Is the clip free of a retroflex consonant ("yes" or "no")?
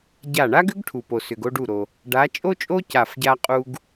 no